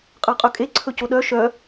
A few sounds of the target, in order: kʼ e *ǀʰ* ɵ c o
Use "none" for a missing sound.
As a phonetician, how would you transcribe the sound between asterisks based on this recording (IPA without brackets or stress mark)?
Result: ǀʰ